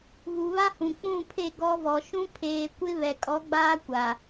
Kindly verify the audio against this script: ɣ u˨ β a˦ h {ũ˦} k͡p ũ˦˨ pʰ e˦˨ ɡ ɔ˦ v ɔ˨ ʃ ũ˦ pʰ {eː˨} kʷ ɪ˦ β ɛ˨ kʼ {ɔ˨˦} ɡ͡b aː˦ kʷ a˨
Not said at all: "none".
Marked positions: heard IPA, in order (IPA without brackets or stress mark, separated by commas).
ũ˨, eː˨, ɔ˨˦